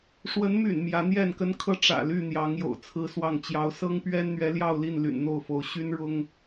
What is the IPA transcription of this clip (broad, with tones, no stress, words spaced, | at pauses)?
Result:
ʂwə˨˦nmy̰˨˩n mjä˨˦n̪jɛ˥˨nkə˦nkʰɤ˥˨ ʈ͡ʂä̰˨˩ly˥˨n̪jɑ˨˦ŋ jo̰˨˩ʊ̯t͡sʰɹ̩˦swɑ˥˨ŋ t͡ɕjɑ˨˦ʊ̯sɤ˦ŋpɥɛ˦nn̪ɥɛ˨˦ ljɑ˥˨ʊ̯li˥˨n ly̰˨˩nn̪o˥˨ʊ̯fo˨˦ʊ̯ ɕy˦n ɻʊ˦ŋ